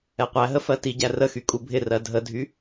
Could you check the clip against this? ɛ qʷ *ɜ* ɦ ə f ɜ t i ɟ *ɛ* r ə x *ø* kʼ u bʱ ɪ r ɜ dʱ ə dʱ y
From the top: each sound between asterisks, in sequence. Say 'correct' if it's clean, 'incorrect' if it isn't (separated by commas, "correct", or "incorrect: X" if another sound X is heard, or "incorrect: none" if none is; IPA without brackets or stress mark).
incorrect: æ, incorrect: æ, incorrect: y